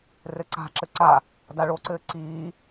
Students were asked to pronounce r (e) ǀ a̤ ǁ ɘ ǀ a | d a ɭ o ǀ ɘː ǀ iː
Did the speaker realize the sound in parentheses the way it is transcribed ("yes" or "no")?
no